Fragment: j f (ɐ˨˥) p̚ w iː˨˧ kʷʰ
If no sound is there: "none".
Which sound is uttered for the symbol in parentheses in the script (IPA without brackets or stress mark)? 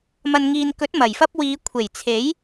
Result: ɐ˥